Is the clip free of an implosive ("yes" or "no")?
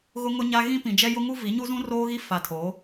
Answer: yes